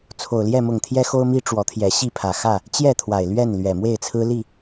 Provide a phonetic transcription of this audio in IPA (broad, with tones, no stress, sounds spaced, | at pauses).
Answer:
t͡sʰ o˨˩ ʊ̯ l j ɛ˥˨ m ʊ˨˩ ŋ t̪ʰ j ɛ˦ x o˦ ʊ̯ m i˦ ʈ͡ʂ w ɔ˨˦ t̪ʰ j ɛ˨˦ ɕ i˥˨ pʰ ä˨˩ x ä˥˨ | t͡ɕ j ɛ˥˨ t̪ʰ w a˨˩ ɪ̯ l ɥ ɛ˥˨ n l ɥ ɛ˨˩ m w e˥˨ ɪ̯ t͡sʰ ɹ̩˦ l i˥˨